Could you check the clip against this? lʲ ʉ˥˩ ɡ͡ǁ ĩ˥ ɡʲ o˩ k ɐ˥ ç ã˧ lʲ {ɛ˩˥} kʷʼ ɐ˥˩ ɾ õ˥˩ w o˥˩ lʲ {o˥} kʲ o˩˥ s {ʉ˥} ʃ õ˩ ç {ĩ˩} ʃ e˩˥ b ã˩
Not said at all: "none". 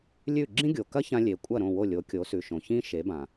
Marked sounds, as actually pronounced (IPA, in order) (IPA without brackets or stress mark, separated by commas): e˩˥, o˩˥, ʉ˩, ĩ˥